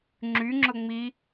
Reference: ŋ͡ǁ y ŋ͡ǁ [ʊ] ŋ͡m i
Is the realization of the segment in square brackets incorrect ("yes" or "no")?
no